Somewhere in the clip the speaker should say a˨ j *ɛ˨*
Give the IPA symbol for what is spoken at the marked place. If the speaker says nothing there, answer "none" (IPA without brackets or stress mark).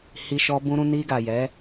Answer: ɛ˨˦